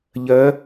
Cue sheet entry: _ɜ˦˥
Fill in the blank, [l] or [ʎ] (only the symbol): ʎ